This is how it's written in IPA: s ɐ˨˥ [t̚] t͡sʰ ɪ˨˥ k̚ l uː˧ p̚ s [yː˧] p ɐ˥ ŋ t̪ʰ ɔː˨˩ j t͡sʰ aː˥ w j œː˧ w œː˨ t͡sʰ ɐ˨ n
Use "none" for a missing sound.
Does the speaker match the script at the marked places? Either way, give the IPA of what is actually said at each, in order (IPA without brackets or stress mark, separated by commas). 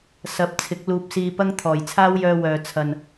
p̚, iː˧